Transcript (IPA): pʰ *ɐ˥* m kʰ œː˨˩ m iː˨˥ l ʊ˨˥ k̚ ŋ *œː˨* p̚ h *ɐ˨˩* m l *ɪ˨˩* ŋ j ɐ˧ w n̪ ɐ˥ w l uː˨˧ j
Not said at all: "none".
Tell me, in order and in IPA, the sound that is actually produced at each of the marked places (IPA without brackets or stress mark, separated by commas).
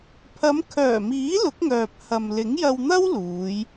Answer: ɐ˨˧, œː˨, ɐ˨, ɪ˨˥